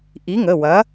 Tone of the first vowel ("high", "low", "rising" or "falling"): rising